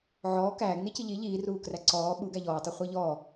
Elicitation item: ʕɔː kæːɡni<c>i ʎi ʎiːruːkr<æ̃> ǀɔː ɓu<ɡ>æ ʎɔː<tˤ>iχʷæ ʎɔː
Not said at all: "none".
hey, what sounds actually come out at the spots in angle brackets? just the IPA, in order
c, æ, ɡ, tˤ

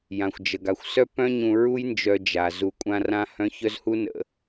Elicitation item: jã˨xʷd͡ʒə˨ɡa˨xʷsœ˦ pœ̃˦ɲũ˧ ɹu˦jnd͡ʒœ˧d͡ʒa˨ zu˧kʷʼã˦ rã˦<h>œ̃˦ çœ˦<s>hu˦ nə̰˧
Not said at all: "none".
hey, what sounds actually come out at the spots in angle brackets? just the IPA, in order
h, z

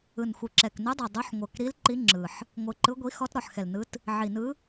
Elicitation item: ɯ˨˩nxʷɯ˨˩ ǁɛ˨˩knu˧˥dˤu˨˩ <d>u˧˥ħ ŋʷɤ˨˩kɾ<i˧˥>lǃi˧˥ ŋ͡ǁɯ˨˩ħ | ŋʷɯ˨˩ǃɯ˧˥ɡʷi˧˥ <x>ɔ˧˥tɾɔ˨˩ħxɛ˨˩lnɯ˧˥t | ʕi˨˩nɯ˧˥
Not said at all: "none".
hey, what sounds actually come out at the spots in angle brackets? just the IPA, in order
dˤ, i˧˥, x

